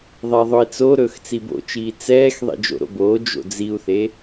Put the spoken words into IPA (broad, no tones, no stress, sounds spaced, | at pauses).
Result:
ðˤ e ðˤ ɵ i̯ t͡s o ɾ ɵː x t͡s i b o̰ t͡ʃ iː t͡s ɛː x ðˤ ḭ d͡ʒ o̰ ɾ o̰ b oː d͡ʒ o̰ d͡z i u̯ θ e